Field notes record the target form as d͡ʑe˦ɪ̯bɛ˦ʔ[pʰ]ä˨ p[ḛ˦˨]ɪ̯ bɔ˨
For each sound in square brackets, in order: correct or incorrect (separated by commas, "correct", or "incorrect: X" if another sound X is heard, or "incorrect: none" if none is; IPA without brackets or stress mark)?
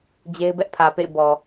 correct, correct